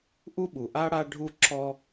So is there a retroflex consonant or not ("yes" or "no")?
yes